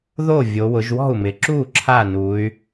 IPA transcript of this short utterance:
ðo˥˩vʲo˩˧wʊ˩˧ʒ wɔ̤˥˩u̯mɪ˩˧ǁu˥˩ ǁʰa˥˩ nu˩˧y̯

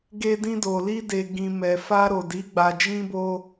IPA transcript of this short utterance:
ɡe˧dĩ˧do˨ li˧de˨ ɡĩ˨mɛ˨fa˧ ɾo˨di˨˦ ɡ͡ba˧d͡ʒĩ˦bo˦

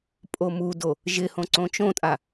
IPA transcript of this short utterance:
pʼomudo | ʒɪhõ ǀõt͡ʃõtʼa

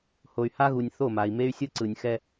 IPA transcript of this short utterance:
ho˨y̯ha˦ɣu˨nʲ θo˦˨ma˨i̯me˦y̯ sʲɯ˦ǀɯ˨nʲxɛ˦

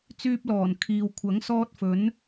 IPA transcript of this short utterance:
t͡syː˧p̚lɔː˨˩n kʰiː˨wkʷʰɐ˨˥ŋsɔː˧t̚ fɵ˨˥n

